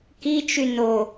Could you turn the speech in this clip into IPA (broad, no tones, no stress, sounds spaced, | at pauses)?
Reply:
k i t͡ʃ y n o